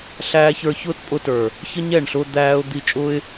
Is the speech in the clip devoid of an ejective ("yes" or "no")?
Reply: no